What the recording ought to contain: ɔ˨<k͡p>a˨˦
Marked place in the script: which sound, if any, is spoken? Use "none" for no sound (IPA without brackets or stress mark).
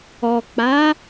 k͡p